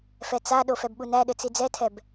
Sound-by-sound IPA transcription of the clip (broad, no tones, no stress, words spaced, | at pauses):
fɛt͡saɗo fɛbɓunæɗɘ t͡sid͡zɛtʰɛb